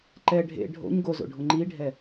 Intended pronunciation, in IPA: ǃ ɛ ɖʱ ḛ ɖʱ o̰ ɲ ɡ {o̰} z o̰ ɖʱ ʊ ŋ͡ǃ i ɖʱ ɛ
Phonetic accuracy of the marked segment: incorrect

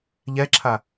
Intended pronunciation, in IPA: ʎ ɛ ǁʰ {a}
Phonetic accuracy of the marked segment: correct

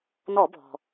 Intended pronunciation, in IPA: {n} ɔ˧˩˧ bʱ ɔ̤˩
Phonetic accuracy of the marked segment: correct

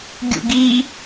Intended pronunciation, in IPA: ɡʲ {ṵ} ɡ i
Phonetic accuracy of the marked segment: correct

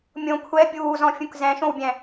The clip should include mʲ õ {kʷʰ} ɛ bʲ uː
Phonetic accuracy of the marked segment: correct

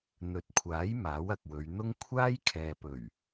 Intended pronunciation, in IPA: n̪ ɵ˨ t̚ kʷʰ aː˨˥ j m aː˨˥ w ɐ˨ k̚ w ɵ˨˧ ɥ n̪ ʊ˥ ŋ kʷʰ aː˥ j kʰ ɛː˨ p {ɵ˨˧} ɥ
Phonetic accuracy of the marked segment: incorrect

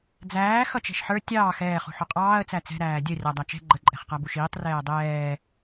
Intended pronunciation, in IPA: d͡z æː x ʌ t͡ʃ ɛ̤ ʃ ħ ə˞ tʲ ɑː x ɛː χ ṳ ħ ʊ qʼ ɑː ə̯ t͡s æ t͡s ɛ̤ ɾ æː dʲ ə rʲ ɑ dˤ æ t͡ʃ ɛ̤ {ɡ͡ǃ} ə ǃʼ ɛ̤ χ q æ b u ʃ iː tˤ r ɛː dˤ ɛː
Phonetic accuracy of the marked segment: correct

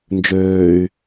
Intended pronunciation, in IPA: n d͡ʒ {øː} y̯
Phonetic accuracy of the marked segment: correct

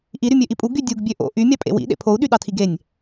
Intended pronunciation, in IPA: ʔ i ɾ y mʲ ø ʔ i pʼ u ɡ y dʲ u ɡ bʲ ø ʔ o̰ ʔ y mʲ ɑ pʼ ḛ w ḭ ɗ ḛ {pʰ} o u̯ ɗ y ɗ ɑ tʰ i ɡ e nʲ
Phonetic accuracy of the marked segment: correct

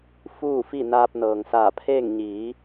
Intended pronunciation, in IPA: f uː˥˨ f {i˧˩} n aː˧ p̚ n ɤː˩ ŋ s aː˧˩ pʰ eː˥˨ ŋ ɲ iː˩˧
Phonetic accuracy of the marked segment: incorrect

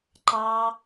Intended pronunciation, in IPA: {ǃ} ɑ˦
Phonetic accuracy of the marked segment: correct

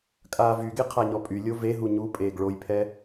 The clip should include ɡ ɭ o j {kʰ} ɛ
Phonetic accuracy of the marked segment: incorrect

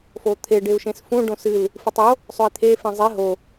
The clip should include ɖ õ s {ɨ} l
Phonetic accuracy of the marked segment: correct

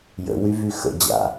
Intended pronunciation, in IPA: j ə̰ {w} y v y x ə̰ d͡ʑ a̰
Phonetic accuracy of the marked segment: correct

